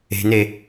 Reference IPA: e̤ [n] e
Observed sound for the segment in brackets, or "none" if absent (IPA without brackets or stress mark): n